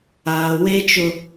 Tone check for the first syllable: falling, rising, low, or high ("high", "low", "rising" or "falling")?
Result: low